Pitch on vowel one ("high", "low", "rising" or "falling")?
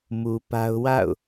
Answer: low